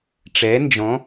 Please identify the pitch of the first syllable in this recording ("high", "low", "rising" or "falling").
rising